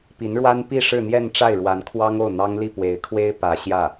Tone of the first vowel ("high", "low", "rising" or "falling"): rising